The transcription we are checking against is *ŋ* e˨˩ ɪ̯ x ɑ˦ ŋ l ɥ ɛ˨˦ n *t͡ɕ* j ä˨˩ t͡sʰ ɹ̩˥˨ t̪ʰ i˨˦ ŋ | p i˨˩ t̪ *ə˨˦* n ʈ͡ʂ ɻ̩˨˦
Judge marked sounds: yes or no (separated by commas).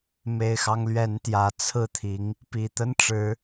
no, no, no